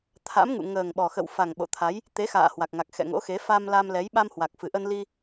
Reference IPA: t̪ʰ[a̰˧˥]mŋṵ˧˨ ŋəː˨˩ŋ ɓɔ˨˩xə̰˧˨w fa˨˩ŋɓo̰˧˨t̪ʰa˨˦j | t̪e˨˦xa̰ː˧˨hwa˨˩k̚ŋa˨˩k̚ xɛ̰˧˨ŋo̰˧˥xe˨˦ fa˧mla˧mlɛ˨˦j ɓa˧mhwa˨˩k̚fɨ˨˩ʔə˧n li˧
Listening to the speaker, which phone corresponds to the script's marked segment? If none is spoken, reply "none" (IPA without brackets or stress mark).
a̰˧˥